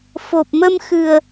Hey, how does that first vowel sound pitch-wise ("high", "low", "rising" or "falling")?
low